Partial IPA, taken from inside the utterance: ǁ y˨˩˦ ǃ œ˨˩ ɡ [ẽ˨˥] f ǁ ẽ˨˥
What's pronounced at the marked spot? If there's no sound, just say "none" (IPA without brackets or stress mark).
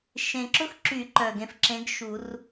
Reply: ẽ˨˥